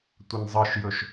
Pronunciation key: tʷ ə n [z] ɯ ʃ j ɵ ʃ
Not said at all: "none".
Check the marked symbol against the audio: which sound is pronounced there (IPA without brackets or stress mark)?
zˤ